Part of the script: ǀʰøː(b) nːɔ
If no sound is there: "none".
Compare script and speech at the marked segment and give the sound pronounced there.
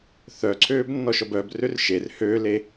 b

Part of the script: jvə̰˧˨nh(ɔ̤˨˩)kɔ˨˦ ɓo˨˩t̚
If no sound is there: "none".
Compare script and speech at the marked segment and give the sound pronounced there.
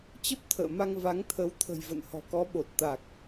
ɔ̤˨˩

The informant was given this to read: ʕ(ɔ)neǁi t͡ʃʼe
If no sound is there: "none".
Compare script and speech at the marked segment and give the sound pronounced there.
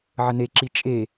ə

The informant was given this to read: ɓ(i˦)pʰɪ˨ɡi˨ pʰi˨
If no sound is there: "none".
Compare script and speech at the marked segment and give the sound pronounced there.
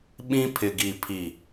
ĩ˦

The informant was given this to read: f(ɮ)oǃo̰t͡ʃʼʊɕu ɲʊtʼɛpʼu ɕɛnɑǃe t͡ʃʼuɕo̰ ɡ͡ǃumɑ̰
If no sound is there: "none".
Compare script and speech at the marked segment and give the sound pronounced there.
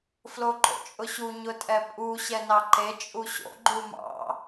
l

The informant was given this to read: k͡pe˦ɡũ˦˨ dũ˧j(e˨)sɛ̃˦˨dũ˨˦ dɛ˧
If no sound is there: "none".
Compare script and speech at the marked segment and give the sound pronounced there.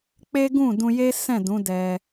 e˦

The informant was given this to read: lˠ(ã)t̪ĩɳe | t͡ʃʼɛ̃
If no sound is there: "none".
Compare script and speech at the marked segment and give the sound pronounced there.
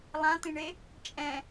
ã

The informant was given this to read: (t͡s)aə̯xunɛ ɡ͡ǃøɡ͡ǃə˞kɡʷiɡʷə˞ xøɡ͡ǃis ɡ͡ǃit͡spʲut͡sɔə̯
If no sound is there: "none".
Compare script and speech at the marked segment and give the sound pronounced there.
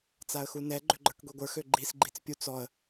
t͡s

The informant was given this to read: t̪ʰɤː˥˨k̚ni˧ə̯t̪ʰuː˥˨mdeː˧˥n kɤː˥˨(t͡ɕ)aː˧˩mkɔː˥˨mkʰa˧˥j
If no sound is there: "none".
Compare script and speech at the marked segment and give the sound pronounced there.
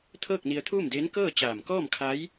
t͡ɕ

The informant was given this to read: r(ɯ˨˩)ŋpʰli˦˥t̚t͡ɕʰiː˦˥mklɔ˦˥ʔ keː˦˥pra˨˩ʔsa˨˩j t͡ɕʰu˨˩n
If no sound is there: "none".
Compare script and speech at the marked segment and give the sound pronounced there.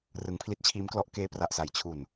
ɯ˩˦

